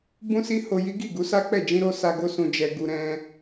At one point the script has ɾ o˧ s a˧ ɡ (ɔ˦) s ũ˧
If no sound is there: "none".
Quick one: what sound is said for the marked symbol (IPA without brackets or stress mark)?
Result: o˦